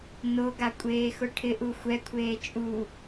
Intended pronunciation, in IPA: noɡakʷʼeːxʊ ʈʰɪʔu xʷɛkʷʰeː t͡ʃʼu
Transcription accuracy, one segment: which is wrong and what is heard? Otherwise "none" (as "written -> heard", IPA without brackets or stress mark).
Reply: none